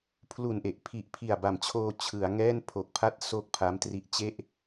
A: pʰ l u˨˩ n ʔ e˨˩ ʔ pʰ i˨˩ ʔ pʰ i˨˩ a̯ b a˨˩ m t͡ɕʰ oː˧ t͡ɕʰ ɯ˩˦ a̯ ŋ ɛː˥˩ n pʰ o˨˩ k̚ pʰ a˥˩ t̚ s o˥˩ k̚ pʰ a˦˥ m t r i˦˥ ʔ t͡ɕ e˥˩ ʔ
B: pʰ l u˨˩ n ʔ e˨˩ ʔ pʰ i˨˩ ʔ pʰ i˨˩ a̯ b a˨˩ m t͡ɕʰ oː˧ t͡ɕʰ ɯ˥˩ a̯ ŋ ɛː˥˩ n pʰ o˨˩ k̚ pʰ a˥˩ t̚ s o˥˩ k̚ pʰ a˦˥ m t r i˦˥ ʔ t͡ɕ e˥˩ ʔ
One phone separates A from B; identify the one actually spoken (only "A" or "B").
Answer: A